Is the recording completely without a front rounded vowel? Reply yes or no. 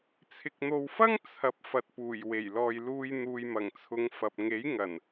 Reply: yes